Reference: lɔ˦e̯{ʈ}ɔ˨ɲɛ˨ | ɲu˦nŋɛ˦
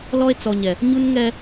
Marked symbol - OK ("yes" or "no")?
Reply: no